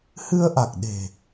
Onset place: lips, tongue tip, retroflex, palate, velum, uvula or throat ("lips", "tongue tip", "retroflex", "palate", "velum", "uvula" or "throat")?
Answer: throat